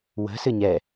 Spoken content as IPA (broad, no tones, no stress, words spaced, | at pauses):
wə̤sɨ ɲɛ